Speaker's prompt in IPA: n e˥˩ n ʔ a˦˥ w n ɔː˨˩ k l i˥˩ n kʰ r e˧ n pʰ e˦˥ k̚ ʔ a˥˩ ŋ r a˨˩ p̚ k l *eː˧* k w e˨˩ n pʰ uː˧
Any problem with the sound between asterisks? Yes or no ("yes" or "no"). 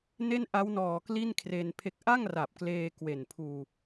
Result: no